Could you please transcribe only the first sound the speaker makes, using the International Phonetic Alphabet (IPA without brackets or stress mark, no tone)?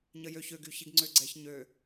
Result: ɲ